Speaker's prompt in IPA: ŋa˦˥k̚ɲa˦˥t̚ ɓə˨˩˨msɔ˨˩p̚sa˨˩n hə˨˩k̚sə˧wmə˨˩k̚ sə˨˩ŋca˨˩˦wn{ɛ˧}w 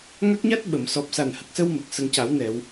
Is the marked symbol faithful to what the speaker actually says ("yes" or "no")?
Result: no